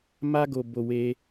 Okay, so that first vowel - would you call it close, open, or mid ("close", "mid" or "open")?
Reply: open